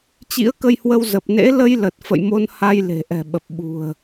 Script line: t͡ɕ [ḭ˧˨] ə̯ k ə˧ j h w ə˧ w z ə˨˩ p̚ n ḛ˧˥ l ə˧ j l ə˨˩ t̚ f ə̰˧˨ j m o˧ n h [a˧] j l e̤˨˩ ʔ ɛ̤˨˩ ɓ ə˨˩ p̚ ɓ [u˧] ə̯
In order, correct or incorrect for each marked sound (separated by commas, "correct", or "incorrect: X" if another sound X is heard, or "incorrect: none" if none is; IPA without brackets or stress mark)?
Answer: incorrect: ḭ˧˥, correct, incorrect: ṳ˨˩